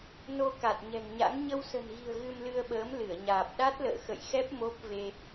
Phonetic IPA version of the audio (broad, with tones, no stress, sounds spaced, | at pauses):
n o˧ k a˨˩ t̚ ɲ ɛ̤˨˩ ŋ ɲ a̰˧˥ ŋ ɲ ə˧ w s ə̤˨˩ n ɣ i̤˨˩ ə̯ ɣ ɨ˧ m l ɨ˧ ə̯ ɓ əː˨˦ m l ɨ˧˩ ə̯ ɲ aː˨˩ p̚ ɗ a˦˥ t̚ l ə̰ː˧˨ x ə̰˧˨ j x ɛ˦˥ p̚ m o˦˥ p̚ v e˧